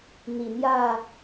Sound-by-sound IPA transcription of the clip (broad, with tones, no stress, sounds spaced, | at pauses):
n̪ i˨˩ n̪ j ä˥˨